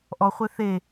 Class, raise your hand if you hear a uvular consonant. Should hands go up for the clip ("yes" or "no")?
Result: yes